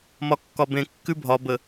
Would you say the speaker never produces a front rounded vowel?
yes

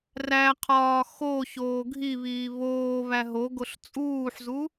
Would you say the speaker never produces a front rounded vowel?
yes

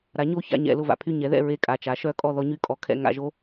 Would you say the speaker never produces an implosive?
yes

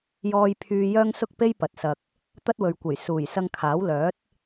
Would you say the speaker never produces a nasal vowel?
yes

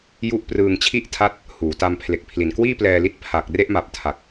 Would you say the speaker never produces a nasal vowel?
yes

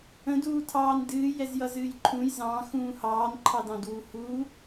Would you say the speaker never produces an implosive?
yes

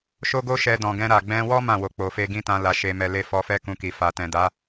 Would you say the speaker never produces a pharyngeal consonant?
yes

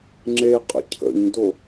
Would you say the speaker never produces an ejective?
no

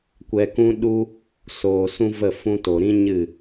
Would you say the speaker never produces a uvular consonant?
yes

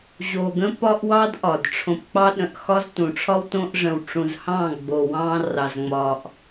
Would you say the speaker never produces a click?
yes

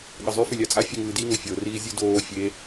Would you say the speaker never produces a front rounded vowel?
no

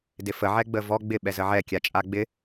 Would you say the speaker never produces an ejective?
no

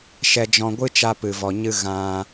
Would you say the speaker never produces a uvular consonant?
yes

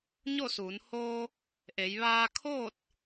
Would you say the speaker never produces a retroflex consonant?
yes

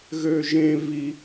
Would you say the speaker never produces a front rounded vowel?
no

